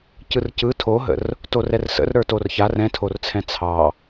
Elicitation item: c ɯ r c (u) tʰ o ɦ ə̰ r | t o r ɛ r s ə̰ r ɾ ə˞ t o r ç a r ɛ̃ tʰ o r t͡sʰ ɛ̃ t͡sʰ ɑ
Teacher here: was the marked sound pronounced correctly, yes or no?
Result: no